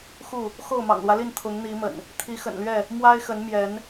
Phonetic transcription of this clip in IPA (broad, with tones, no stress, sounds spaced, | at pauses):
x u˥˨ | x o˥˨ ʊ̯ m ɑ̰˨˩ ŋ l w ä˦ l i˥˨ n t̪ʰ ʊ˨˦ ŋ n̪ i˨˦ m ə̰˨˩ n | t̪ʰ i˨˦ x ə̰˨˩ n l ɥ ɛ˥˨ | m w a˦ ɪ̯ x ə˨˦ n m j ɛ˨˦ n